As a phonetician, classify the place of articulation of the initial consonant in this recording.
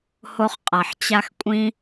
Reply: glottal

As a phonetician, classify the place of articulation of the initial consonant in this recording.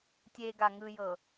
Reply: alveolar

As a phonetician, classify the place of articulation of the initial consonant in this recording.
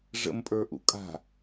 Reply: retroflex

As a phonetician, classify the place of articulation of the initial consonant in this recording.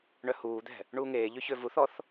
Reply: retroflex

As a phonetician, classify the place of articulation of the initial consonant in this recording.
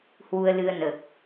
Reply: glottal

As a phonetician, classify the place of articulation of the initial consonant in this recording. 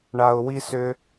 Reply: retroflex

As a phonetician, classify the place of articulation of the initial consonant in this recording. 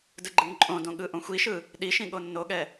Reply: alveolar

